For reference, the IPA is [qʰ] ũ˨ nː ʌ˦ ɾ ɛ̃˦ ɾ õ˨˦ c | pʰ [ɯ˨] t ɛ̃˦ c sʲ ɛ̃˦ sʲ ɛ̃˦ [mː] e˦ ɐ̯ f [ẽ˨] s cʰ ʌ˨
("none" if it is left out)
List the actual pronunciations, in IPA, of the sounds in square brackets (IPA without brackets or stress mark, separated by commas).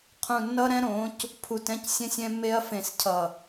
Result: qʰ, u˨, mː, ẽ˨